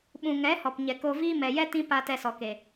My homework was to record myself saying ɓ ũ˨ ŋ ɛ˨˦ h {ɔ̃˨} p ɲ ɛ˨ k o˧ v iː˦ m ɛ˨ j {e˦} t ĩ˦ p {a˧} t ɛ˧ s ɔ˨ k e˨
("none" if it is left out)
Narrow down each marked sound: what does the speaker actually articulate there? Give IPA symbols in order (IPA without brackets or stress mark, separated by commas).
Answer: ɔ˨, ɛ˦, a˧